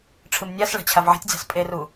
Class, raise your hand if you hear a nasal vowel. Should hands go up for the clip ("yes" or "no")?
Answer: no